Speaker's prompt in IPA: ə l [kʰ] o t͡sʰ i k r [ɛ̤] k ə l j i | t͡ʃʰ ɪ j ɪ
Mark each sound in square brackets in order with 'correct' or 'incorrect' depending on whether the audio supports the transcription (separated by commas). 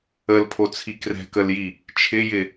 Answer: incorrect, correct